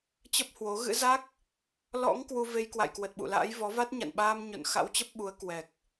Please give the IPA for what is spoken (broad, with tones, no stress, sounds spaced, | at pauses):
t͡ɕ ə˦˥ p̚ h w o˨˦ ɣ ɨ̰˧˥ z a˦˥ k̚ | l ɔ̰˧˥ ŋ k w u˧ v e˧ j k w a̰˧˨ j k w ə˨˩ t̚ ɓ ṵ˧˨ l a̰ː˧˥ j v ɔ˨˦ v a˦˥ t̚ ɲ a̰˧˨ n ɓ aː˧ m ɲ o̰˧˨ n x a̰˧˥ w t͡ɕ ə˦˥ p̚ ɓ u˨˦ ə̯ k w ɛ˨˩ k̚